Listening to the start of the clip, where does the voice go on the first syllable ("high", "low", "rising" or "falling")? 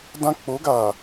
high